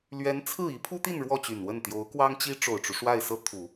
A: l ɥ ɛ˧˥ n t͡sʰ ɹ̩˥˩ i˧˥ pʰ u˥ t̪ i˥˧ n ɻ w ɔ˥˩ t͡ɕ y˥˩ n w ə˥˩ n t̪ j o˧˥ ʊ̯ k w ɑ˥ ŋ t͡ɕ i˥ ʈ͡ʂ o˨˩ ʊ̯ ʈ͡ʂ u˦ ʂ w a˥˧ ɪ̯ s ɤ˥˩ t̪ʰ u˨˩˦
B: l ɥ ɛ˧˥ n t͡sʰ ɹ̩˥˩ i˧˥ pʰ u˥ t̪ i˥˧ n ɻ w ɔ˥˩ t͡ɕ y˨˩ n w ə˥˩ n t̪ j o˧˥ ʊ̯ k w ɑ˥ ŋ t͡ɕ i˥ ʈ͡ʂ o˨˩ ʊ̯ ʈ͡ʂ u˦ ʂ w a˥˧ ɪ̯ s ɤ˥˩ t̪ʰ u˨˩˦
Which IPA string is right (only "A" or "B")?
B